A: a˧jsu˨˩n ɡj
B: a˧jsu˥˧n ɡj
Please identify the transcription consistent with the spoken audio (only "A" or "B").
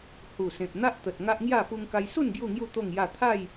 B